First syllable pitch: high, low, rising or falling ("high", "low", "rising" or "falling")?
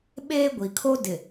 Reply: high